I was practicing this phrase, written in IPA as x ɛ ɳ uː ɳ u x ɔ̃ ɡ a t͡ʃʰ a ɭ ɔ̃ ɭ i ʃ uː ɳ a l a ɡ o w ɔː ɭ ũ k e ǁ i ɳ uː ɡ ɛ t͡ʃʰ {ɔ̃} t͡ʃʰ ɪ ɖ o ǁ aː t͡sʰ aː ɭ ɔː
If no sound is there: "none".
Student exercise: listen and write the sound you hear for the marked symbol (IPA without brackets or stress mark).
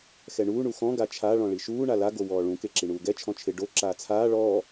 ɔ̃